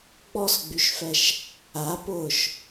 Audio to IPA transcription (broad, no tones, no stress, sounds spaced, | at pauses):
ɡ͡b ɔ s ɡ͡b y ʃ f ɛ ʃ | a p ʊː ʃ